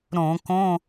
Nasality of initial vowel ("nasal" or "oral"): nasal